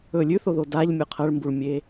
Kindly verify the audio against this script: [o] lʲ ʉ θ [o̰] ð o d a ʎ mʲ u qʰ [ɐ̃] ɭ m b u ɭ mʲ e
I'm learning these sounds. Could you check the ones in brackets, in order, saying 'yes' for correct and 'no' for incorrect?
no, no, no

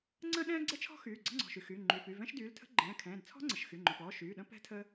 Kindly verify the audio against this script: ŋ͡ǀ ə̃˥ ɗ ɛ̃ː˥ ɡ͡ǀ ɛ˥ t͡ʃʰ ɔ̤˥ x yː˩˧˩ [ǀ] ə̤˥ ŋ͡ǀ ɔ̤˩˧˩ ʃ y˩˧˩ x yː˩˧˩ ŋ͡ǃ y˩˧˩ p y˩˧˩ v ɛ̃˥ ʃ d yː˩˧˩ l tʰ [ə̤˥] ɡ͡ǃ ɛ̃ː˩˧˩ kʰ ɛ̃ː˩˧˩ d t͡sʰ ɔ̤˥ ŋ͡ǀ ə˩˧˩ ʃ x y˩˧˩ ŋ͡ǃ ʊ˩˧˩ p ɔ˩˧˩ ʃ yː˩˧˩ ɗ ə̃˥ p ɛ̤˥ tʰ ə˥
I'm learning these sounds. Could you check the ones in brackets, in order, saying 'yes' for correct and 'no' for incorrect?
no, yes

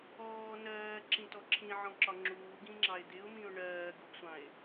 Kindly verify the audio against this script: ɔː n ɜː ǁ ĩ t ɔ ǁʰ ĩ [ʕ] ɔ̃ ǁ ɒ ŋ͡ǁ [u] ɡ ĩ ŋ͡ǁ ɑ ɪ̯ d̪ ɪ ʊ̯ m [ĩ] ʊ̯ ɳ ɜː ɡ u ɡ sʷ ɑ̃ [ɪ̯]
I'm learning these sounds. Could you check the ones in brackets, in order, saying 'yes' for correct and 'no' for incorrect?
yes, no, yes, yes

